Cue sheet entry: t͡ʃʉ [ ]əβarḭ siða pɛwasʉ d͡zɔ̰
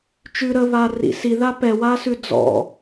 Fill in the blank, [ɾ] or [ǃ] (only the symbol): ɾ